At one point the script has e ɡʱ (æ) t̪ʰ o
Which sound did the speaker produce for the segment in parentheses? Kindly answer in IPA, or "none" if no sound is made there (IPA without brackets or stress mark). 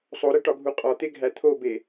æ